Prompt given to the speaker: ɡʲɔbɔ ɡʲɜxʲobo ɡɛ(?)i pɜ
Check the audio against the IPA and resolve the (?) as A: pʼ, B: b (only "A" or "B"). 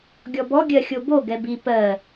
B